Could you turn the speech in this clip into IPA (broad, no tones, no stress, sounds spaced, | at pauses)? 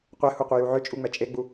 qʷ ɛ h u qʷ e j u ʕ ʏ t͡ʃʼ u ŋ͡m ɛ t͡ʃʼ e ɡ͡b u